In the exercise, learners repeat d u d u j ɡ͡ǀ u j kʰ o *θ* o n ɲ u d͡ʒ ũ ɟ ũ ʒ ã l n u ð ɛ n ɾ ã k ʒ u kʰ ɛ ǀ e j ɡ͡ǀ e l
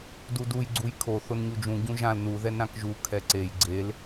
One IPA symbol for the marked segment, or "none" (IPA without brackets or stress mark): θ